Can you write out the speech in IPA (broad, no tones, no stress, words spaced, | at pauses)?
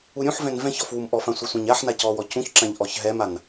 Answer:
uɾʲũħvɛ̃n vɛ̃çɔf wumʔɔfã sʷœsʷãɲaħna cɔwɔ cũçǁãʎ ʔɔçɦɛman